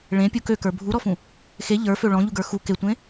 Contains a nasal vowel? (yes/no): yes